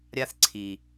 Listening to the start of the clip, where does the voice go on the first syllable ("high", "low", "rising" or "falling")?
high